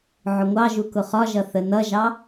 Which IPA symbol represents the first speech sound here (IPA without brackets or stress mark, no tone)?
ʕ